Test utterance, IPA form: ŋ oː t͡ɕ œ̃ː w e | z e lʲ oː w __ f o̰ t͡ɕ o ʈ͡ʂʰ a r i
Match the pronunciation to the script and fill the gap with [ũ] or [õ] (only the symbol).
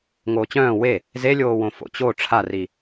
õ